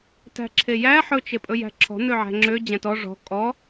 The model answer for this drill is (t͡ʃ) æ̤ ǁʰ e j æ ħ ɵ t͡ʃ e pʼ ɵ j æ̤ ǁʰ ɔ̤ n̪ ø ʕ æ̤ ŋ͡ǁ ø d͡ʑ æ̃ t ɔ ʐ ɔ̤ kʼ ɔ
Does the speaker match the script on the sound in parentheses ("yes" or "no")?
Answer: no